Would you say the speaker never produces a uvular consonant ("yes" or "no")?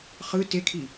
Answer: no